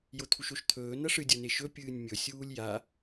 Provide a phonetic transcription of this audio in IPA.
j o t̪ʰ u ʃ o ʃ t̪ʰ ɵː n ɐ ʂ ɨ dʲ ɐ n e ʃ ɵ pʲ ɨː nʲ mʲ ɵ sʲ uː lʲ j a

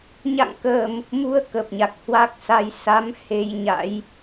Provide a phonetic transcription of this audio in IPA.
ɲ a̰˧˨ ŋ k əː˨˩ m | m u˧ ə̯ k ə˨˩ p̚ ɲ a˨˩ k̚ h w a˦˥ k̚ s a˧ j s a˨˦ m h e˧ j ɲ a̰˧˥ j

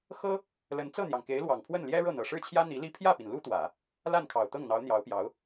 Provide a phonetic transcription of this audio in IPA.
x ɤ˥ | l ə˧˥ n t͡s ɤ˥˩ n̪ j ɑ˩ ŋ k e˧˥ ɪ̯ l w ɑ˨˩ ŋ pʰ w ə˥˩ n l j ɛ˥ ɻ ɤ˥˩ n̪ ɤ˨˩ ʂ ɻ̩˥˩ t͡ɕʰ j ä˥ n̪ i˧˥ l i˥ pʰ j ä˥˩ p i˩ n l u˥ t̪ w ä˨˩˦ | l a˥˩ n kʰ ɑ˨˩ ʊ̯ t̪ ɤ˥˩ ŋ n̪ ɑ˧˥ ʊ̯ n̪ j ɑ˧˥ ʊ̯ p j ɑ˧˥ ʊ̯

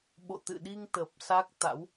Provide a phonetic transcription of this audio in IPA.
ɓ o̰˧˨ t̪ ɨ̰˧˨ ɗ i˧ ŋ t̪ əː˨˩ p̚ s a˦˥ k̚ t̪ a̰˧˥ w

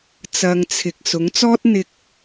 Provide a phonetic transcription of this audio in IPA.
t͡s ɐ˨ ŋ t͡sʰ ɪ˨ k̚ s ʊ˨˥ ŋ t͡s ɔː˥ t̚ n̪ ɪ˧ k̚

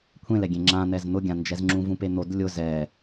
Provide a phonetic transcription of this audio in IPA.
kʷʰ ẽ l ɛ ɡʲ ẽ ŋ͡ǁ ã n̪ ɛ z n̪ ʊ ɡʲ ã n d͡ʒ ɛ z ŋ͡ǁ ũ v ũ p e n̪ o d lʲ ʊ z ɛ

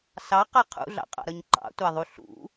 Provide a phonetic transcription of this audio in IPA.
s ɑ q a qʰ ṵ ɮ ɑ̰ qʼ ɑ̰ ɾ ʌ ɲ ǃ ɑ̰ tʷ a ðˤ u ɬ ṵ

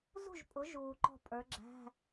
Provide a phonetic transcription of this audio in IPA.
z ṳ˥˨ ʒ pʼ ʊ˨˦ ʒ uː˨ ǃ ɔ̤˥˨ pʼ ə˞˨˦ ɡ͡ǁ æ̤˧˥˧

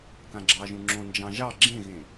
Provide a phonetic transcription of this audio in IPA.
k ã ɡ͡ǁ ɑ ʒ ũ ŋ͡ǁ õ n d͡ʒ ɑ̃ ʒ ɑ ɡ͡ǁ ẽ ɣ ẽ

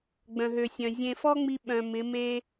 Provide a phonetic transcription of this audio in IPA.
ɡ͡b œ̃˨ ɦ ø˨ sʲ œ̃˨ zʲ ẽ˨ f ɔ˦ ŋ͡m i˦ ɓ œ̃˨ m ɪ˨˦ m e˦

